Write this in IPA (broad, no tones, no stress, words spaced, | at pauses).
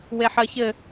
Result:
weħɜçɘ